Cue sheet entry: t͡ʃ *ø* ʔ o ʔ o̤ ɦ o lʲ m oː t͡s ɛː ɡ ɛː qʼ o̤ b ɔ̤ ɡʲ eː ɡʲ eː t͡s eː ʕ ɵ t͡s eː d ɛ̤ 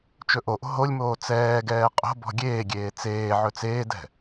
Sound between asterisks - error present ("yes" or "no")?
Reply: yes